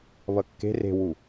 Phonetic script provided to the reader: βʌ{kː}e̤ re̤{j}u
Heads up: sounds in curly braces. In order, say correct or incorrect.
correct, incorrect

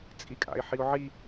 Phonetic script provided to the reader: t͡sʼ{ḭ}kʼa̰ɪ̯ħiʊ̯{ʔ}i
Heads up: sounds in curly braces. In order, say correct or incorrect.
incorrect, incorrect

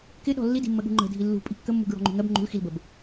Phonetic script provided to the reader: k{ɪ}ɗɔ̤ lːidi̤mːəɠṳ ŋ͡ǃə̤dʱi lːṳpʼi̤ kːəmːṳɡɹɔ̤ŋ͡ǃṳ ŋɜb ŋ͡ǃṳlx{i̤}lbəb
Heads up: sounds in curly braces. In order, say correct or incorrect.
correct, incorrect

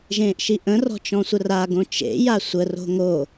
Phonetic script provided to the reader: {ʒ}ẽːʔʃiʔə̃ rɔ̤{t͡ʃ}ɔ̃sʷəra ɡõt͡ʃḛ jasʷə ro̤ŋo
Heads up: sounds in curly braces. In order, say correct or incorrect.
correct, correct

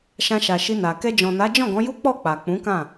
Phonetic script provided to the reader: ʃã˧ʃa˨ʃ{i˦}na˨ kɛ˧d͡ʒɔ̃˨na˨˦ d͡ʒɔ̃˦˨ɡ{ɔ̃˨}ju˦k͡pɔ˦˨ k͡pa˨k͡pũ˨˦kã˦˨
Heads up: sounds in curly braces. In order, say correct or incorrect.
incorrect, incorrect

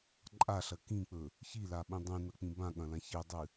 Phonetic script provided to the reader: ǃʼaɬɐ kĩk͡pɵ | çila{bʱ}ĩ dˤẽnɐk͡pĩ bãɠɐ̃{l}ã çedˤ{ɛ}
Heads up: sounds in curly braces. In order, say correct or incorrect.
incorrect, correct, incorrect

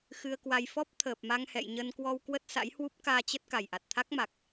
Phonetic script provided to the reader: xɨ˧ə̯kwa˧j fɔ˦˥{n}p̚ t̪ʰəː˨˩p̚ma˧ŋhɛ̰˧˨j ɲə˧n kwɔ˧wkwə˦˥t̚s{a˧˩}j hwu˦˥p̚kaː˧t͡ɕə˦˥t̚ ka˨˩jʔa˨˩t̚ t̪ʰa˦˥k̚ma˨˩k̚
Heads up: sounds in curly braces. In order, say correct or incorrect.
incorrect, incorrect

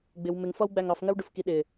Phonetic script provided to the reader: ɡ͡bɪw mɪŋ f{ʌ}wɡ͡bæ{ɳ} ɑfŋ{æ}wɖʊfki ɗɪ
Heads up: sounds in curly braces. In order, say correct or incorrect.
correct, incorrect, incorrect

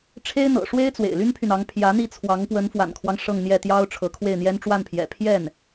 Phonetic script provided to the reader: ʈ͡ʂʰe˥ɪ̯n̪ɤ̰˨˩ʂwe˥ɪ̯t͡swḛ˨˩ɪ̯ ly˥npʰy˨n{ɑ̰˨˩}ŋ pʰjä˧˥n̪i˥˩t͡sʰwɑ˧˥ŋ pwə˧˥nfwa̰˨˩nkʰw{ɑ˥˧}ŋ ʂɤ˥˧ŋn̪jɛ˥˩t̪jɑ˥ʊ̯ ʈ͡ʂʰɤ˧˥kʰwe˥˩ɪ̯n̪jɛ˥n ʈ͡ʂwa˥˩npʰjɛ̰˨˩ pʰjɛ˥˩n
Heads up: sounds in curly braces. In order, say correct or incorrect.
incorrect, incorrect

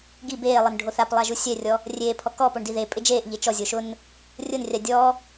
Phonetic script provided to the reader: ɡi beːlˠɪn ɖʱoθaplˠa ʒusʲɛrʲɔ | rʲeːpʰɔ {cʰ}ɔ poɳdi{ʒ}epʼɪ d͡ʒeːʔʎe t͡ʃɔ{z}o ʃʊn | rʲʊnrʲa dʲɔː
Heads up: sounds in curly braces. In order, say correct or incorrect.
incorrect, incorrect, incorrect

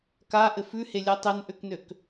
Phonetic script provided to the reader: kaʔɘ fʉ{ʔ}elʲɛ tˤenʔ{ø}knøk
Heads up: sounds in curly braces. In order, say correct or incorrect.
incorrect, correct

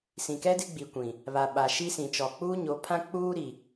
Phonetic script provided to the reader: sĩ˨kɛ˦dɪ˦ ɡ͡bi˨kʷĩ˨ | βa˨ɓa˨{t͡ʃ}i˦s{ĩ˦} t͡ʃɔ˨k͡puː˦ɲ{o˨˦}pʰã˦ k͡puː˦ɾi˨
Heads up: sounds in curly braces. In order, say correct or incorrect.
incorrect, incorrect, correct

